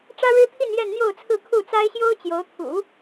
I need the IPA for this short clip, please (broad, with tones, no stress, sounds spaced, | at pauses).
ʈ͡ʂ ä˥ ɻ ɻ̩˥ t̪ʰ i˥˧ n j ɛ˥˧ n n̪ j o˥˧ ʊ̯ t͡sʰ ɹ̩˥˧ kʰ u˥˩ t͡s a˥ ɪ̯ ɕ j o˥ ʊ̯ t͡ɕ j o˧˥ ʊ̯ t̪ʰ ṵ˨˩˦